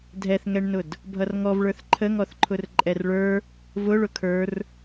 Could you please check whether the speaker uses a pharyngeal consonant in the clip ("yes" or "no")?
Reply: no